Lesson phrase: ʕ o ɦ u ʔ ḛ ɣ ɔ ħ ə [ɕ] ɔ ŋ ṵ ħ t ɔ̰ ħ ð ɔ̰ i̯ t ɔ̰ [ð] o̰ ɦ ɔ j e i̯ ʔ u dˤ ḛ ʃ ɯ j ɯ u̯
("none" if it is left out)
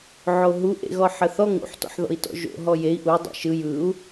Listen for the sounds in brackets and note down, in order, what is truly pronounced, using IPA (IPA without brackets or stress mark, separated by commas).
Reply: θ, ʒ